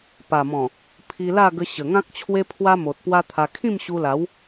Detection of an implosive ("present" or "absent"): absent